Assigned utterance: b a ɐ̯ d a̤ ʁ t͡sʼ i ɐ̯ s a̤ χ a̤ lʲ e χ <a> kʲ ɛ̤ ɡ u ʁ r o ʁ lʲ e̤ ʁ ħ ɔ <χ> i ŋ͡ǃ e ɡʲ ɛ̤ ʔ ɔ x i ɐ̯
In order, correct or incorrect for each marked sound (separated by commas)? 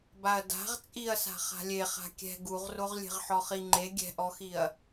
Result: incorrect, correct